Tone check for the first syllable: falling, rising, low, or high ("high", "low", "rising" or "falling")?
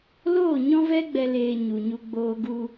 falling